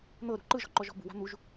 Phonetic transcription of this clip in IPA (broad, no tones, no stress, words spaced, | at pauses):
n̪ɤɾṳ ǃɯʒɔ̤ǃɔʒɔ̤ bṳwa̤ n̪uʒ